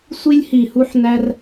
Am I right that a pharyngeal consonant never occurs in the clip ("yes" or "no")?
no